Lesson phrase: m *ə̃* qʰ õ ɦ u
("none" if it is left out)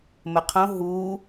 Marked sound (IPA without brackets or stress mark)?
ə